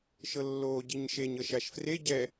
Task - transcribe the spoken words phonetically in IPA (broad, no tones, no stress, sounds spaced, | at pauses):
ʃ ɤ lː oː ɟ i ɲ ʃ e ɲ ɤ ʃ a ʃ f r e ɟ ɛ